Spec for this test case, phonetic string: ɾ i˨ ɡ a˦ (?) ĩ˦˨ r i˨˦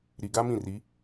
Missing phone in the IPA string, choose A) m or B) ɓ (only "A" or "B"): A